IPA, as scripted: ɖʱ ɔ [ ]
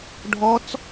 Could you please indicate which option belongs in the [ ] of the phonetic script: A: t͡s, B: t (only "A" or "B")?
A